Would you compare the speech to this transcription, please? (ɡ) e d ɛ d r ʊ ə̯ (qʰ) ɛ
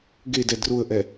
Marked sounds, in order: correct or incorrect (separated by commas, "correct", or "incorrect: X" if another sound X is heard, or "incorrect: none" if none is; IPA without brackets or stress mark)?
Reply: correct, incorrect: ʔ